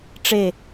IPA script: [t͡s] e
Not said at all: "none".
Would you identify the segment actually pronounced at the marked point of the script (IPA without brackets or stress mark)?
ʈ͡ʂ